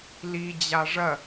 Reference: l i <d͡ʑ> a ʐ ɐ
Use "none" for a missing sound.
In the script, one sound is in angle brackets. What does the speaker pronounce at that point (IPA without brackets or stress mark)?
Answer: d͡ʑ